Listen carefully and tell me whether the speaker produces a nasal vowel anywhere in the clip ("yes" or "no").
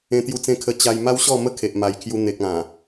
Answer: yes